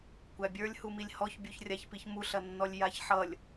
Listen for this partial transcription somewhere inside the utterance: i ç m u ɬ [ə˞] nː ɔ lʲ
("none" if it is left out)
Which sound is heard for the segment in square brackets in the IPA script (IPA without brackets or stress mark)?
ɐ